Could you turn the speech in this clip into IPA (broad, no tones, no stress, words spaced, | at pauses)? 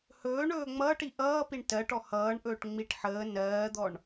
hɵːɳ ɵːŋ͡mʌːʈi ʔʌːpiɳ tɜʈɔ hʌːɳʔɵːʈ ŋ͡miʈ ħəː nɜːd̪ɔɳ